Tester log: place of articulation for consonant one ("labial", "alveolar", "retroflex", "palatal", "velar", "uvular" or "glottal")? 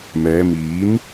labial